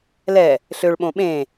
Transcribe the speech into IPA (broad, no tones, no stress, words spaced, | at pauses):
lɛ | ɬøɭɓõ ɓẽ